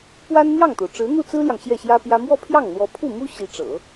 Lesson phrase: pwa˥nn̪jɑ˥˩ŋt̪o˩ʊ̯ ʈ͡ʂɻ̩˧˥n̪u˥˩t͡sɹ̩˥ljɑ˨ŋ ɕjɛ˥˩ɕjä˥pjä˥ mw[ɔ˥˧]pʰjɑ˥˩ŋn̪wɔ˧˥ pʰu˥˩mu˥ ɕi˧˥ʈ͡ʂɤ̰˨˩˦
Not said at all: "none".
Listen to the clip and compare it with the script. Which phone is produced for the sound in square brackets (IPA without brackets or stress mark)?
ɔ˥˧